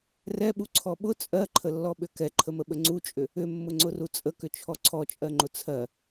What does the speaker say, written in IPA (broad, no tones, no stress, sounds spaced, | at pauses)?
r ɛ ɓ u ǀʰ ɔ ɓ ʊ t͡sʼ ɜ ǃʰ ə lː ɔ ɓ ʏ k ɛ ǃʰ ə m ə ɓ ə ŋ͡ǀ u t͡ʃʼ ʏ | ʏ mː ʊ ŋ͡ǀ ʊ r u t͡sʼ ə k ʏ t͡ʃʰ ɔ ǀʰ ɔ t͡ʃʼ ɜ ŋ͡ǃ ʊ t͡sʰ ɜ